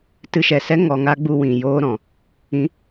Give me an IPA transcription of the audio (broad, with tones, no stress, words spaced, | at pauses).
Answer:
tɨ˧ʃɛ˨sɛ˦ ŋɔ˧ŋa˦ ɡ͡bu˧wĩ˨joː˧ ɾɔ̃˨ | ĩ˨˦